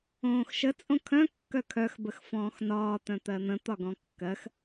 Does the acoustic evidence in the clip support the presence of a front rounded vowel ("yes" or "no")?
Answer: yes